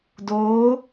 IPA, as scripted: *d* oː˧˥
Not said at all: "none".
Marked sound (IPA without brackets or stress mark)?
d